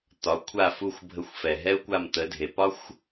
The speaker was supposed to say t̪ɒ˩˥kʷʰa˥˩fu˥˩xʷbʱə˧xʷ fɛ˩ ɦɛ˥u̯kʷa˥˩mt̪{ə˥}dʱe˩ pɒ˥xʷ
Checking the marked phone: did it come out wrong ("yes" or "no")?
yes